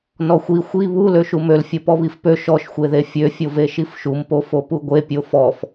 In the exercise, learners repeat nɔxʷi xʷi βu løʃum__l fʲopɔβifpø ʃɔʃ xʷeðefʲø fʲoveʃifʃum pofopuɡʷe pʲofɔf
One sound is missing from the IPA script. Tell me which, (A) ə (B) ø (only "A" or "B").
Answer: B